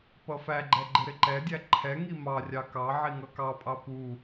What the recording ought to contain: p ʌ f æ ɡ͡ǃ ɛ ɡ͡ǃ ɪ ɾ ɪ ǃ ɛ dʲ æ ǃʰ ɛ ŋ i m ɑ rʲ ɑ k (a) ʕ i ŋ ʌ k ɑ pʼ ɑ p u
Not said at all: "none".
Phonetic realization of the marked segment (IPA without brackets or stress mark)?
ɑ